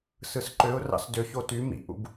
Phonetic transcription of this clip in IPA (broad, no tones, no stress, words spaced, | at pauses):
sɯsǃøʊ̯rɑ̰s døço ty mḭʔṵb